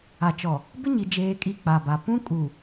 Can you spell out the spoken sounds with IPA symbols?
a˨ t͡ʃ ɔ˨ | b ɪ˦ ɲ i˨ d͡ʒ eː˨ kʼ i˨ k͡p a˨ b a˨ p ũ˦ kʼ u˨

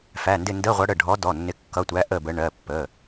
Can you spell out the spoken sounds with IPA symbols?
f æ˩˧˩ n d ɪ˦˨ n d ə˧˥˧ ʁʷ ʌ˨˦ ɽ ə˩˧˩ ɖʱ ɔ˨˦ d ɔ˩˧˩ nː ɪ˨˦ kː ʌ˩˧˩ tʷ æ˨˦ ʔ ə˦˨ b ə˨˦ ɳ ɜ˩˧˩ pː ə˩˧˩

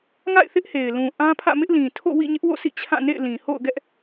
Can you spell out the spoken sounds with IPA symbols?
ŋ a̰˦˨ ɪ̯ θ ɪ˦ ʔ h e˨ ɪ̯ l ũ˨ ʔ ã˦ pʰ ä̰˦˨ m ɪ˦ ʔ l ĩ˨ tʰ o̰˦˨ w ḭ˦˨ ɲ ɪ˦ ʔ w o̰˦˨ sʰ ḭ˦˨ t͡ɕʰ ã˦˨ n ḛ˦˨ ɪ̯ l ĩ˨ h o̰˦˨ ʊ̯ ɡ ɛ˦ ʔ

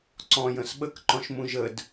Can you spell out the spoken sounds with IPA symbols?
ǀ ɔ̃ j ə̃ s ɓ ə k ǃ ɔ̃ ʃ m ũ ʒ ə d

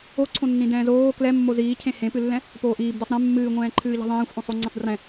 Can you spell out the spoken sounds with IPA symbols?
o ǀʰ õ nː ĩ d ɛ̃ː z oː k l ɛ mː o z iː cʰ ẽ h ẽ p ɨ lː ɛ̃ | p oː ʔ iː b d ɛ sˤ ɾ ẽ mː ɨː ŋʷ ɛ̃ː ǃʰ ɨː ʎ ɛ̤ ðˤ ẽː xʷ ʔ õ sˤ o ŋ͡ǀ ĩ sˤ d r ɛ̃

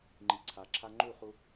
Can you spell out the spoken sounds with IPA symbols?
ŋ͡ǃ i˨ ǀʰ a˨ ǁʰ a˦ ŋ͡ǃ u˦˨ χ u˧

